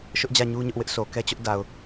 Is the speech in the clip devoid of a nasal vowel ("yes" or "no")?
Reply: yes